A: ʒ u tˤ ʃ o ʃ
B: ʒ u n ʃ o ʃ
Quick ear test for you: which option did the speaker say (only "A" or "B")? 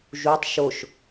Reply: A